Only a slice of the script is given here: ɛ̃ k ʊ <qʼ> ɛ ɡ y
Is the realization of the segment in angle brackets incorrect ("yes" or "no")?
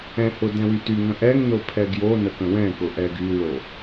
yes